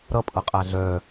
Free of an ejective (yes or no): no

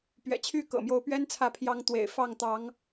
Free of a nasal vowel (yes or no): yes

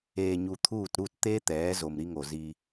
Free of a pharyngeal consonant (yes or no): yes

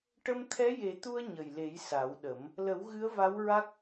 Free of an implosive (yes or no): no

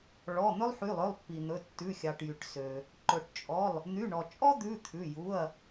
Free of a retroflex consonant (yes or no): no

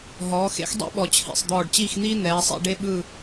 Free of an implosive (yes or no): no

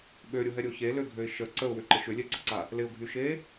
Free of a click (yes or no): no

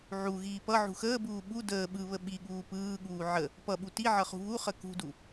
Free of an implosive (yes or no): no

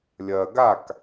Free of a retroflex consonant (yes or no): yes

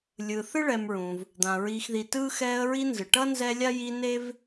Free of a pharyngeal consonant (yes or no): yes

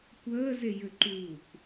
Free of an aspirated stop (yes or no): yes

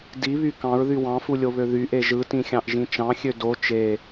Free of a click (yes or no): yes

